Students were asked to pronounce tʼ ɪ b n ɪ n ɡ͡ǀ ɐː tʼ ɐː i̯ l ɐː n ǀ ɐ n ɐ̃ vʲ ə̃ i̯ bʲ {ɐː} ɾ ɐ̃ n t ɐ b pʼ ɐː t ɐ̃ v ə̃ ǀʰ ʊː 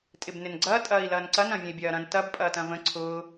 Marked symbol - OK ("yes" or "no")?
yes